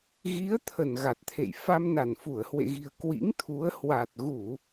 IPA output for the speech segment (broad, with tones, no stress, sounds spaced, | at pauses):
ɣ i˨˦ ə̯ t̪ʰ ə˧˩ n ɣ a˨˩ t̚ t̪ʰ ḛ˧˨ j f a˧ m n a˧˩ n f u˧˩ ə̯ h w ḛ˧˨ ɣ i̤˨˩ ə̯ k w ḭ˧˥ ŋ t̪ʰ u˨˦ ə̯ h w a˨˩ t̚ ɣ u˧˩˨